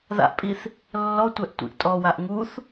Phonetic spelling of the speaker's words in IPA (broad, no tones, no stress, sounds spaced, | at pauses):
ð a̰ ʔ pʼ i θ | lː ɔ tʷ ɛ ʔ tʷ ḭ ʔ tʼ ɔ w a ʔ ŋ u θ